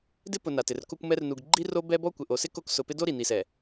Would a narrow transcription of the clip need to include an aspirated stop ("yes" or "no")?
no